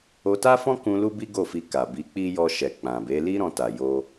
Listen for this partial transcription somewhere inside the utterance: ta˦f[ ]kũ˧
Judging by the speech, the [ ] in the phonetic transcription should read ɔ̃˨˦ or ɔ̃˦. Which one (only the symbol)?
ɔ̃˦